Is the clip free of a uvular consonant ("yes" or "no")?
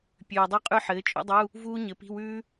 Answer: no